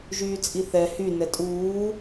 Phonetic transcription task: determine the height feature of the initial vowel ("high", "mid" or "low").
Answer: high